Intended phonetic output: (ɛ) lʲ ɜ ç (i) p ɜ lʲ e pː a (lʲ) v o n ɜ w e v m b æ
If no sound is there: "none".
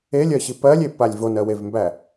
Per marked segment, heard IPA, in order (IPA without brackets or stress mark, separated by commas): e, i, lʲ